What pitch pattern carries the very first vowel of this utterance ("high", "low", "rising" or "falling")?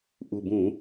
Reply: low